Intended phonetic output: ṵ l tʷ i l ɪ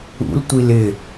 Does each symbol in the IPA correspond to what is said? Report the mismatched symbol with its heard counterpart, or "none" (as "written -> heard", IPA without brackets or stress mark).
none